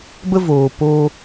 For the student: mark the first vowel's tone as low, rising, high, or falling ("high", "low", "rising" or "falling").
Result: high